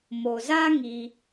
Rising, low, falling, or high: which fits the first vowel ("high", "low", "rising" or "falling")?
low